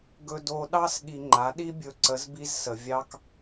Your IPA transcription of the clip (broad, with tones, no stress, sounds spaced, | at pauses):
ɡ ɵ˧ d o˧ ɗ ɑ˥ s ɠ i˧ ŋ͡ǃ a˩˥ ɗ i˥ bʲ ɵ˧ ǀ ə˩˥ z b i˧ z s ə˩ vʲ ɑ˧ k